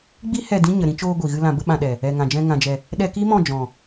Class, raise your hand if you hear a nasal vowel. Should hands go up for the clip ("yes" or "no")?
yes